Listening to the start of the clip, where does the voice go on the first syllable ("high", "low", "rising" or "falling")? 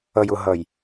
low